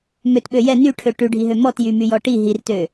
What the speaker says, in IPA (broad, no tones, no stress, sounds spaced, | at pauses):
m ø t ɓ ø j ɛ n y ʈʰ ø ʈ ʉ ɖʱ i ɦ ø m ɔ t j y m y j ɔ ʈ i ɦ i r t ø